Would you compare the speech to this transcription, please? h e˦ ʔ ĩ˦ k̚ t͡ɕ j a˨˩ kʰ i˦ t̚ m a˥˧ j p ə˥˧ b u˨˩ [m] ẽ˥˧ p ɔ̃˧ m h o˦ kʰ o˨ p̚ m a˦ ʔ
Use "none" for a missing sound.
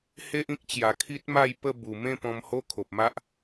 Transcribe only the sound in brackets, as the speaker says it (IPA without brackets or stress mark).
m